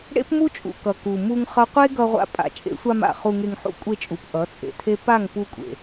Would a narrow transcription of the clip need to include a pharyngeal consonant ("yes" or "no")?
yes